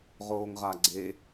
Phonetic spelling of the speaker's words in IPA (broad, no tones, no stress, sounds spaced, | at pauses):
ʁ oː ŋ ʁ a ɡ͡ǀ e